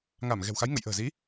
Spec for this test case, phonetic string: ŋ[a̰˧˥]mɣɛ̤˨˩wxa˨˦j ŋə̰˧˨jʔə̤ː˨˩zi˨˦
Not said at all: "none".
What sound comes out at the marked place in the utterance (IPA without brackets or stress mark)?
a˧˩